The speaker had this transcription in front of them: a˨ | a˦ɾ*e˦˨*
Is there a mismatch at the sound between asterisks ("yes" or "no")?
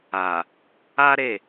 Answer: no